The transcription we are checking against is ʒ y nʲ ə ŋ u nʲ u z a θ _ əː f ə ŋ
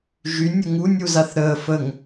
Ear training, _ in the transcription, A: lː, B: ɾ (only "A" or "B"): B